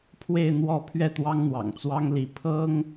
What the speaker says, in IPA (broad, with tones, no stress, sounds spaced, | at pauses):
pʰ w e˥˧ ɪ̯ n̪ w ɔ˥˧ pʰ ɥ ɛ˥˩ t̪ w ɑ˥ ŋ n̪ w ɑ̰˨˩ ŋ t͡s w ɑ˥ ŋ l i˧˥ pʰ ɤ˥ ŋ